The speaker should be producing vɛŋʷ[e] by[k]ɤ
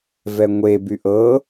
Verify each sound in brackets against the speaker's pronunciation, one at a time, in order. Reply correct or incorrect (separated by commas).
correct, incorrect